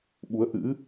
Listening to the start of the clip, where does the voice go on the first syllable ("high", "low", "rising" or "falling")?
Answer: rising